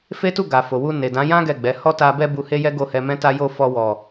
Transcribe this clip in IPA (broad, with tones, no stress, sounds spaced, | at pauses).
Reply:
f e˦ t u˦˨ ɡ a˨ f o˨ w u˧ n e˨ d ã˨˦ j ã˦ ɡ ɛ˦˨ ɡ͡b ɛ˨˦ h ɔ˦ t a˧ b ɛ˦ b u˧ h e˦ j ɛ˦ ɡ o˦˨ h ɛ˧ m ɛ̃˦ t a˦ j o˦˨ f ɔ˧ w ɔ˨